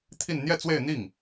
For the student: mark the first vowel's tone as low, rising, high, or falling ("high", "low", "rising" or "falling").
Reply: falling